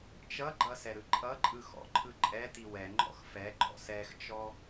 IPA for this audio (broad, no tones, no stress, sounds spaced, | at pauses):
t͡ʃ ʌ ɡ͡ǃ ʌ s ɛ ɾ ɯ ǃʼ ʌ ǃʼ ɯ x ɔ̰ ǃʰ ɯ ǃʼ ɛ t i w ɛ ŋ͡ǃ ɔ̰ x f ɛ ɡ͡ǃ ɔ̰ s ɛ x t͡ʃ ɔ